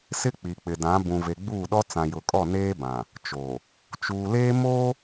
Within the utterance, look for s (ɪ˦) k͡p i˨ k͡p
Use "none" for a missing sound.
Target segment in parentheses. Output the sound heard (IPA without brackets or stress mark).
ɪ˦